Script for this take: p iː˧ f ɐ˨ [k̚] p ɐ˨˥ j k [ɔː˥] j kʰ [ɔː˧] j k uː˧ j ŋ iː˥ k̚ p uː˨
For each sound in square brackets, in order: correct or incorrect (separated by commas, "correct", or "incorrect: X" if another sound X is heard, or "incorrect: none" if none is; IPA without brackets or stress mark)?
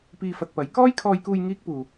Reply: incorrect: t̚, correct, correct